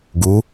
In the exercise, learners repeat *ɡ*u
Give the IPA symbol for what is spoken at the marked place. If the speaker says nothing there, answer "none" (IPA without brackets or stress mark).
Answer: ɡ